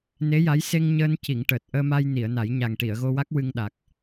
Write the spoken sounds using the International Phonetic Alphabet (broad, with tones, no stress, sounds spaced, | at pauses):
n e˧˥ j a˧˥ j s e˧ ŋ ɲ əː˧ n c i˨˩˨ ŋ ʈ əː˨˩ t̚ ʔ əː˧ m a˧ j n i˨˩˨ ə̯ n a˨˩˦ j ɲ a˨˩ ŋ ʈ i˨˩˨ ə̯ ɣ o˧ w a˦˥ k̚ w ɨ˧ ŋ ɗ a˨˩ k̚